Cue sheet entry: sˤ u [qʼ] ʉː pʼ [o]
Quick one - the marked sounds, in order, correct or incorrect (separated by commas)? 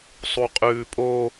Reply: correct, correct